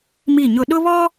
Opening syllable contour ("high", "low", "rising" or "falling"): falling